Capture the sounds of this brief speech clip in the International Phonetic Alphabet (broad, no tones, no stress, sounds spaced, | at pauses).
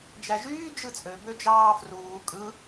d͡ʒ æ ʒ yː d͡ʒ ɯ t͡sʼ ø b ø d͡ʒ ɑː f r uː kʼ ɯ